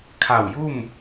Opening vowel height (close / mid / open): open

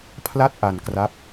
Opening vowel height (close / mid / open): open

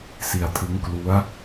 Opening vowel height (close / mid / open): close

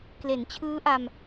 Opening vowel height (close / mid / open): mid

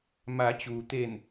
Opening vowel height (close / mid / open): open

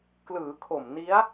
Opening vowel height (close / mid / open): close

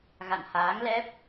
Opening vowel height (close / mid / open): open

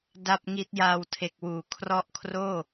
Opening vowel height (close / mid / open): open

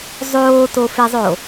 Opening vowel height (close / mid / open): mid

